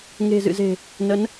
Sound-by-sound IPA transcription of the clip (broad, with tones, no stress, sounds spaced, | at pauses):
ŋ e̤˨˩ z ɨ̰˧˨ z e̤˨˩ | n ə˨˦ n